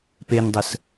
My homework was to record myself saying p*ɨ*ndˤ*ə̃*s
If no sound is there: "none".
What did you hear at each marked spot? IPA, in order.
e, ə

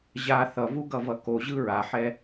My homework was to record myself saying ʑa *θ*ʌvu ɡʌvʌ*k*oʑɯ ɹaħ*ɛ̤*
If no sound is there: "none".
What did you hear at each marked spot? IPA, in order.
θ, k, ɛ

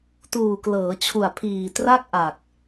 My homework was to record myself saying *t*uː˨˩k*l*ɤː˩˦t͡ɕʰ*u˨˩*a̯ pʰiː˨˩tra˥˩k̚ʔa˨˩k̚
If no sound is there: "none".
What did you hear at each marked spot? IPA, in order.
t, l, u˨˩

